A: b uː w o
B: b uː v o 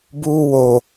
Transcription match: A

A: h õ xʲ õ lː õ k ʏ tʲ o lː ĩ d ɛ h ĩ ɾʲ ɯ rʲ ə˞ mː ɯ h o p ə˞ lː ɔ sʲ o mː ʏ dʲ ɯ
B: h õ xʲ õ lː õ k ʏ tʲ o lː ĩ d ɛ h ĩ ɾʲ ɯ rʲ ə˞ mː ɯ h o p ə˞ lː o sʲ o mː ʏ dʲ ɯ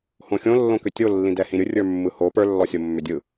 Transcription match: A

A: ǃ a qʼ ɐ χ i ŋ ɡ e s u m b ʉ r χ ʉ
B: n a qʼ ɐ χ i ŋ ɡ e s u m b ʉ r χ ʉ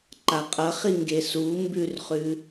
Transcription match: A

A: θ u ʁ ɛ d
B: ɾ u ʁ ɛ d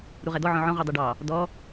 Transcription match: B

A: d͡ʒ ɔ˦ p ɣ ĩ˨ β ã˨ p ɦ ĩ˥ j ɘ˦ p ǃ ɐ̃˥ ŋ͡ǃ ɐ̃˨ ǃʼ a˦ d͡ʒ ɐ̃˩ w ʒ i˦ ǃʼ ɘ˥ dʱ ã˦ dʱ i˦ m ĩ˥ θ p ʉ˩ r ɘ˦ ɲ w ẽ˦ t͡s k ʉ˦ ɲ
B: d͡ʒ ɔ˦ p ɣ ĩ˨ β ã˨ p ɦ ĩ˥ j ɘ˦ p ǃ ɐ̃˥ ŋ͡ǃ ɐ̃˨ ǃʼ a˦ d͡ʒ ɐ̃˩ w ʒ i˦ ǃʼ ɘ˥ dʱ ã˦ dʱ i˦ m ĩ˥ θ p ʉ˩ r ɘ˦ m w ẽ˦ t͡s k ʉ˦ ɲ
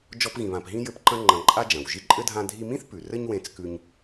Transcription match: A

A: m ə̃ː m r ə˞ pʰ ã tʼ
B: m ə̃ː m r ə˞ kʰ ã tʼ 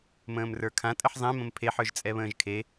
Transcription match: B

